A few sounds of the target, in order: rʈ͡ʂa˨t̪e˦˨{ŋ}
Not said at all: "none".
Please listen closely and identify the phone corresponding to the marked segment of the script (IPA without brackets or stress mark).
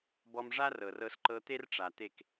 k